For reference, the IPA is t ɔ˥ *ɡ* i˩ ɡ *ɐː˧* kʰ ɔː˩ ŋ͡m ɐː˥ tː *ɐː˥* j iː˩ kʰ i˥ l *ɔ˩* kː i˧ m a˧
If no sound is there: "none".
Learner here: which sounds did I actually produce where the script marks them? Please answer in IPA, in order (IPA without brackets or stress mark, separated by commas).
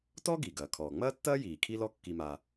ɡ, ɐː˩, ɐː˥, ɔ˥